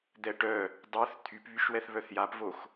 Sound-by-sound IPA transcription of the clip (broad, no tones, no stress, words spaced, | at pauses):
d̪ɛʈœ | dˤœθ t̪ʰypβyʃwɛθ βœθjapvox